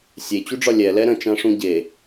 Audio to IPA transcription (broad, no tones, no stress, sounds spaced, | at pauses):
sʲ e t͡ɕ u ɖ͡ʐ ɒ lʲ ɛ l ɛ ɾ ə̃ t͡ʃ ã ʂ ũ ɟ e